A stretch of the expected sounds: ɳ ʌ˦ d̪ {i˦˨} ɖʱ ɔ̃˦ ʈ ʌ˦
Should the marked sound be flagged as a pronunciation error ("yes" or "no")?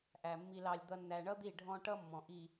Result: no